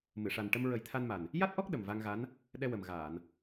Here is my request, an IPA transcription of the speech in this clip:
m ɨ˨˩˨ ʂ a˨˩ n ʈ ə˧ m ɹ ə˨˩˦ j t̪ʰ a˧ n m a˨˩ n | j a˦˥ t̚ ʔ ɔ˦˥ k̚ ɗ ə˨˩ m v a˧ ŋ ɣ a˧˥ n | ɗ ɛ˧ w ə˨˩ m ɣ aː˨˩˨ n

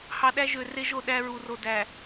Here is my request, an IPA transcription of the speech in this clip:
h ɑ˨ ɗ æ˦ ʒ ø˨ r e˦ ʒ o˨ ɗ æ˦ ɹ u˨ r o˨ d æ˨

